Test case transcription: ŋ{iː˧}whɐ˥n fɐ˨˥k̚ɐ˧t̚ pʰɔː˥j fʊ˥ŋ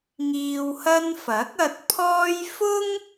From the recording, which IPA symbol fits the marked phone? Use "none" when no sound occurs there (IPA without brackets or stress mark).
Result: iː˧